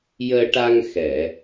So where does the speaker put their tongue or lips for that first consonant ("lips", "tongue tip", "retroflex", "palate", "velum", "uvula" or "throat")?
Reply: palate